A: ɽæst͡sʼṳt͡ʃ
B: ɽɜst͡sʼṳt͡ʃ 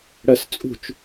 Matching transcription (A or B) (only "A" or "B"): B